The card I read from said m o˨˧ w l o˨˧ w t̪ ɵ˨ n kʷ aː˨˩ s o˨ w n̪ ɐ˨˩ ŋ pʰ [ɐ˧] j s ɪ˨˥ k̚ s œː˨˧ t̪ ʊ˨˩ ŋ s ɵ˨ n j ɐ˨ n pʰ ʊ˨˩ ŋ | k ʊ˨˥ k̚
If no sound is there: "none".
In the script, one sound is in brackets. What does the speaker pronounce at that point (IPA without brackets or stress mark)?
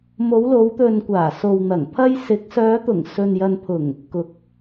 ɐ˧